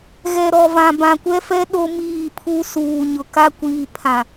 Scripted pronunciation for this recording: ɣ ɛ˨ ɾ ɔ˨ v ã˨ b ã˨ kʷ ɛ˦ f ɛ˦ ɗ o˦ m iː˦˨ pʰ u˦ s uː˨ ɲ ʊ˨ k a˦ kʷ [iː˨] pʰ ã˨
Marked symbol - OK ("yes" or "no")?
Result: yes